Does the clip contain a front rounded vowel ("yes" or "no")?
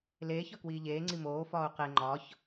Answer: no